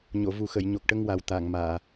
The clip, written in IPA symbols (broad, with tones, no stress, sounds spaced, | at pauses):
ɲ o˨˩˨ v u˨˩ x ə˨˩˨ j ɲ o˨˩ k̚ ʈ ə˧ ŋ w a˨˩ w t̪ a˨˩˨ ŋ m aː˨˩˨